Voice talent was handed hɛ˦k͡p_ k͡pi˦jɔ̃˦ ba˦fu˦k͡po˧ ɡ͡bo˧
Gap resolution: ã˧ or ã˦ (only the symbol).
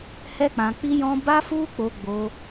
ã˧